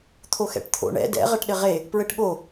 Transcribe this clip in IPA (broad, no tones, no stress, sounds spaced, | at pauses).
t̪ʰ o x ɛ̰ ʈ t̪ʰ o̰ ɳ ɛ̰ d ɛ̰ ʁ ɐ ʈ ɗ ɘ ʁ e | p ɹ ɘ ʈ ɠ o